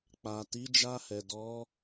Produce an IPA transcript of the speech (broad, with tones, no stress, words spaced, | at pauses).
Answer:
k͡pa˨ti˨˦d͡ʒa˧hɛ˨ dɔ˨˦